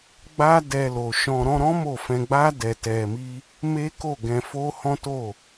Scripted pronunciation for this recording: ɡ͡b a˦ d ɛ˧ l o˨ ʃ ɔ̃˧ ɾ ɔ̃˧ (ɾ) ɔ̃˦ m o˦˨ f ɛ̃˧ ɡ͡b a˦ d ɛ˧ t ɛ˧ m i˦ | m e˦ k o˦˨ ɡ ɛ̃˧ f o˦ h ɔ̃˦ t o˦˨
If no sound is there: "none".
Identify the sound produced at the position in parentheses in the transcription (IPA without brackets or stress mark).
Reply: ɾ